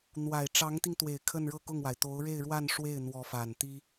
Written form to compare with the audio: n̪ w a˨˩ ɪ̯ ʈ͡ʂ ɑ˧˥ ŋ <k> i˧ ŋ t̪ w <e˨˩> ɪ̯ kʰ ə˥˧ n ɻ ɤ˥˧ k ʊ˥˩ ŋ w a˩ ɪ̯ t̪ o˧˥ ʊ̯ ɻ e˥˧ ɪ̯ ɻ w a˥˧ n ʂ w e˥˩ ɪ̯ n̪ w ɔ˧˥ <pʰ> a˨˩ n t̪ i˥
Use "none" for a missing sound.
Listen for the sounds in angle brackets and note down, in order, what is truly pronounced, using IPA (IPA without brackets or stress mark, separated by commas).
t̪, e˨˩, f